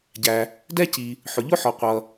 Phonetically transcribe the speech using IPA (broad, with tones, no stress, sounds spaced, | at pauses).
ɟ æ˩ | d ɛ˥ c i˩ | ħ ʊ˩ ʎ ʊ˥ ħ ɔ˩ qʷ ʌ˩